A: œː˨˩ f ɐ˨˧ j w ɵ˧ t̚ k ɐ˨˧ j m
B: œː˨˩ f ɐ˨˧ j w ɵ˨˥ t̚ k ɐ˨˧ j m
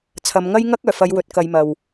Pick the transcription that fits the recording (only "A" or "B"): B